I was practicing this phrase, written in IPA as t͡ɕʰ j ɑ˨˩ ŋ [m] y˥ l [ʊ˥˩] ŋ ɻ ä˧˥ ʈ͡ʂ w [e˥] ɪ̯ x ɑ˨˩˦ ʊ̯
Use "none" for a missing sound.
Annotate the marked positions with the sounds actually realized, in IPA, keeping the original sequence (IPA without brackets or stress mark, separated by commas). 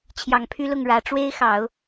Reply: pʰ, ʊ˥˩, e˥